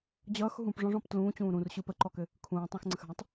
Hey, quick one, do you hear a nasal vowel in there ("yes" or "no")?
yes